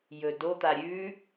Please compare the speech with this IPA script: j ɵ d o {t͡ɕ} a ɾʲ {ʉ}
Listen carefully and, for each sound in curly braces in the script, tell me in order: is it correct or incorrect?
incorrect: t̪, correct

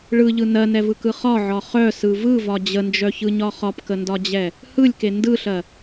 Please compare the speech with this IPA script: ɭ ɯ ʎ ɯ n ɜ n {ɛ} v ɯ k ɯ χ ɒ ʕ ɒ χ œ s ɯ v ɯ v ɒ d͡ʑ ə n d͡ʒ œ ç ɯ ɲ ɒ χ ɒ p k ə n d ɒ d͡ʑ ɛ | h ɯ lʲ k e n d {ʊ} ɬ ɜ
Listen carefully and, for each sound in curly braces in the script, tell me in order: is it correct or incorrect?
correct, incorrect: ɯ

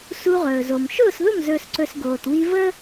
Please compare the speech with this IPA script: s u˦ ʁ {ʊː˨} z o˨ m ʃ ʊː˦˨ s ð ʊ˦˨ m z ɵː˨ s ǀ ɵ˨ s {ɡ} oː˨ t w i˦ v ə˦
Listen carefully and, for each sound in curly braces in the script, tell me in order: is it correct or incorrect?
incorrect: ɵː˨, correct

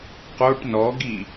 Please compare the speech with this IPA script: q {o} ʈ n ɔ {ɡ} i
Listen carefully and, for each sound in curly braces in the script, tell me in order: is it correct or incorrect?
correct, correct

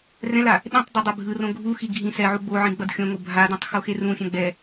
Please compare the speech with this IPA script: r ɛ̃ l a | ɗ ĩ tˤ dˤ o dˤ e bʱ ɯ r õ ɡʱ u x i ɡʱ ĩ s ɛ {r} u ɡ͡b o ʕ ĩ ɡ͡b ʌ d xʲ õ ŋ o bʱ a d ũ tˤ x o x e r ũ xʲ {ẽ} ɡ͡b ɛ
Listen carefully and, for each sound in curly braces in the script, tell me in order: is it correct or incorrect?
incorrect: ʕ, incorrect: ɛ̃

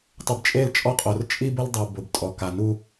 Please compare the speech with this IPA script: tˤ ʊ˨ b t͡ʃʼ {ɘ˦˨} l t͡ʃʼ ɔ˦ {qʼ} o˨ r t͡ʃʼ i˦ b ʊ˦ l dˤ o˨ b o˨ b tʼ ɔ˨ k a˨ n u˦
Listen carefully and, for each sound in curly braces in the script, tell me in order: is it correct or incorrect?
incorrect: e˦˨, correct

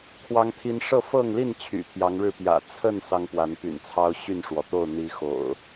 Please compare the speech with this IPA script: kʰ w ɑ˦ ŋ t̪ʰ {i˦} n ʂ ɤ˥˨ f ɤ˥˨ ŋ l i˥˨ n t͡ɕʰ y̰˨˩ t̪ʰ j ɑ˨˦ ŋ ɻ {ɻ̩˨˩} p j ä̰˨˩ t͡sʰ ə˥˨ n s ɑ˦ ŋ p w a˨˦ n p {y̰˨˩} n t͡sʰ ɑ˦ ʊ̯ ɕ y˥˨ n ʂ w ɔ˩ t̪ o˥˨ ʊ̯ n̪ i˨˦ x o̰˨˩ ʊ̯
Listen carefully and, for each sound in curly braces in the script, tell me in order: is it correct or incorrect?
correct, incorrect: ɻ̩˥˨, correct

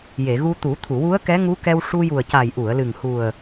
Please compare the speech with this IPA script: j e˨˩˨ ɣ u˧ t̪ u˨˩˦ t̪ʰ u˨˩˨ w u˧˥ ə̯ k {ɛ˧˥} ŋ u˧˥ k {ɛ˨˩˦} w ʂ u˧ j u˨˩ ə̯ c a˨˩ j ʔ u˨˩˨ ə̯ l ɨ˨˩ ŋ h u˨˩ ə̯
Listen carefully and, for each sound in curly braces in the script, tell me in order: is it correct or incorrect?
correct, incorrect: ɛ˧

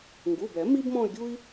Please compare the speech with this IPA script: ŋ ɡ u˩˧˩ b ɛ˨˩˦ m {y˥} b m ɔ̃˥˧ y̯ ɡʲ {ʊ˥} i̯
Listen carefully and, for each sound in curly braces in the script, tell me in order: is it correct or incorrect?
incorrect: i˥, incorrect: u˥

